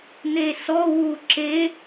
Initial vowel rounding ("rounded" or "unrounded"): unrounded